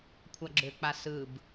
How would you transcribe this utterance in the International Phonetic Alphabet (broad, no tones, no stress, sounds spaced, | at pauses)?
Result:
kʷʰ a ɡ͡ǁ ø k͡p a s ɯ b